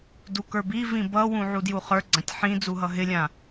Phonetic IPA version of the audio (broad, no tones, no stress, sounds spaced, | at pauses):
d u k ə˞ b i v ĩ b ʌ w ũ ʕ u d j u χ ə˞ ɡ͡ǀ ã tʲ ħ ĩ d͡z u ɦ ʌ ɦ ɪ lʲ ã